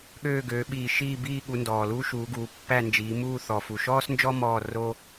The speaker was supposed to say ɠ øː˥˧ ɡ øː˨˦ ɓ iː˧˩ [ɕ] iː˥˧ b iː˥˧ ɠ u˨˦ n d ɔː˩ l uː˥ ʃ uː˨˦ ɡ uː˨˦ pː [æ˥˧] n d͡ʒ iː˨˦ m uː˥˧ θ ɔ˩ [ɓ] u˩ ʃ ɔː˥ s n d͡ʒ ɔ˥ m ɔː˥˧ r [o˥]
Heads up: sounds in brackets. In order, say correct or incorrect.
incorrect: ʃ, correct, incorrect: f, correct

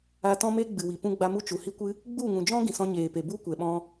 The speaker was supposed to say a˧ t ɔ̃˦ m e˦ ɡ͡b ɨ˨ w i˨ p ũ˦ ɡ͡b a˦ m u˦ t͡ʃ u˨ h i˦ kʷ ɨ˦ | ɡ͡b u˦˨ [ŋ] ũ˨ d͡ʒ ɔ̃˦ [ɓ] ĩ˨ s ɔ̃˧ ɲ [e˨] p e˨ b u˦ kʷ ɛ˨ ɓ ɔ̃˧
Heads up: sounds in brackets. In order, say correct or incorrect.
correct, incorrect: ɡ, incorrect: eː˨

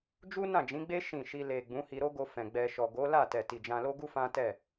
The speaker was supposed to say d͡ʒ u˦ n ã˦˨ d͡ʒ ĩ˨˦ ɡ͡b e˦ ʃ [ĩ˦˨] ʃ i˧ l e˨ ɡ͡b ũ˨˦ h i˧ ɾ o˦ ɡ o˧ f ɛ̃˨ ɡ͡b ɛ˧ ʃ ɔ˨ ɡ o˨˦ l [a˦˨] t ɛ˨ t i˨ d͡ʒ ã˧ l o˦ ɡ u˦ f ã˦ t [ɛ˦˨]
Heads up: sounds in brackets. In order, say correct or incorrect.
correct, correct, correct

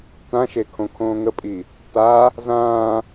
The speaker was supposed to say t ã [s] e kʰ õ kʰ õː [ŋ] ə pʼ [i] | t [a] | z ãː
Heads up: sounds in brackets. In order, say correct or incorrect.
incorrect: ʃ, correct, correct, correct

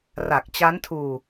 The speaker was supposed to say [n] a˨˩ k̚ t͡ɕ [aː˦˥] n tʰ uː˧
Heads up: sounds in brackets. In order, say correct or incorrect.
incorrect: r, incorrect: a˦˥

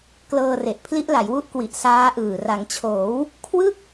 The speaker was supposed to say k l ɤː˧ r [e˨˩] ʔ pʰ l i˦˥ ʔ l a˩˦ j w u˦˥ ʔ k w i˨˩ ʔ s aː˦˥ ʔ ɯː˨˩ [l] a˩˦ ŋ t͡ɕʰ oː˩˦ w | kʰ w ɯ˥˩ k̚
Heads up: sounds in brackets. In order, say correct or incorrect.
correct, incorrect: r

